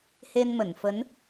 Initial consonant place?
glottal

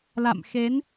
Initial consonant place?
alveolar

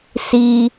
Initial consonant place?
alveolar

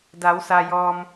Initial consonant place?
alveolar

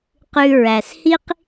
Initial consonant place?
uvular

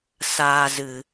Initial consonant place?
alveolar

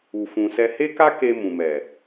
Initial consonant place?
labial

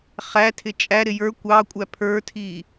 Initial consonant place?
uvular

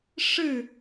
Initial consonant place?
retroflex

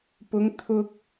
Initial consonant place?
labial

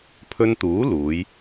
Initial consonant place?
labial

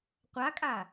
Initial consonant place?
uvular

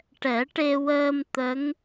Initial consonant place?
retroflex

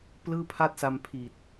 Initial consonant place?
labial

